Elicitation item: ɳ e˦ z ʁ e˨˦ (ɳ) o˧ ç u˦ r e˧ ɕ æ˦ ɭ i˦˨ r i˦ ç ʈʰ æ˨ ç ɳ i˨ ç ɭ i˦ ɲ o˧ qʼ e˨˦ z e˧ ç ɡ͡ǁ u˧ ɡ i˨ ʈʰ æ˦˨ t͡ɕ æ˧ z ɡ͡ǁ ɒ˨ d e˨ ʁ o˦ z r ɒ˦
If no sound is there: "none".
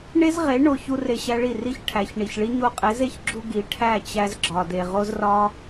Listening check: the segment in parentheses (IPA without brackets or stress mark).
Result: ɳ